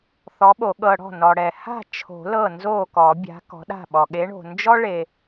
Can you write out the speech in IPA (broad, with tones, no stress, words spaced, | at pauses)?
θɔ˨˥ɓo˨˩˦ ɠɤ˨ ɽɔ̤˥˩nɔ˨ɽɛ˨ ha̤˥˩t͡ʃʰo̤˨˩˦ lɤ˥˩nzo˥˩kɔ˨˩˦bʲa̤˨˥ kɔ̤˨˥ɗa̤˥˩ɓɔ˨ ɠe˨˥ɳo̤˨nd͡ʒɔ˥ ɭe˨